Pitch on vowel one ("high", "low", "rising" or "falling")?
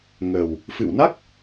low